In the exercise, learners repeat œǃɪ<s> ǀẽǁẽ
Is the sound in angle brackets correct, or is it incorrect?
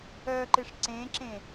incorrect